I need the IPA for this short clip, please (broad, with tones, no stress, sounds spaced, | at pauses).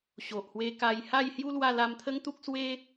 ɕ o˨ ʔ h w e˧ k a˧ j h a˥˧ j h j u˦ l w a˥˧ l a˧ m t̪ʰ ə˦ ŋ t̪ u˦ k̚ s w e˦